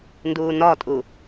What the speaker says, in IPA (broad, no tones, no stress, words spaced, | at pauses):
nduːnɒtʼu